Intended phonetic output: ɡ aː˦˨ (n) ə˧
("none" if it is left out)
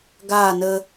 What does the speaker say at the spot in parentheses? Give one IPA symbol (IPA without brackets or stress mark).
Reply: n